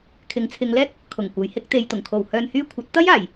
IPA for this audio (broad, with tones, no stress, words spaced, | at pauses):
kʰɪ˨˥ŋt͡sʰɪ˨˧ŋlɛː˥k̚ | kʰʊ˨˩ŋ kʷɐ˨˥jhɪ˨˥k̚ t̪e˨jt̪ʊ˨˩ŋkʰo˨˩w hœː˧nhyː˥ kʷʰɐ˨˥t̚t̪ɐ˥jaː˨˩j